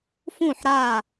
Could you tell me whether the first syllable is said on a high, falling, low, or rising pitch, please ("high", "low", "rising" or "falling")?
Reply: falling